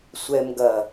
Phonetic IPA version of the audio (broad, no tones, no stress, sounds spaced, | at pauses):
sʷ ɛ m ɡ ɐ